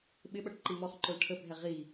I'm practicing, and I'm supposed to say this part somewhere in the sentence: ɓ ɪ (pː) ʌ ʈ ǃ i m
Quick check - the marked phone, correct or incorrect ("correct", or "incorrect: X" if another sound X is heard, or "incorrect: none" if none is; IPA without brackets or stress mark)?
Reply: incorrect: ɓ